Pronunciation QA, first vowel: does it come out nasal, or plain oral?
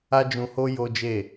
oral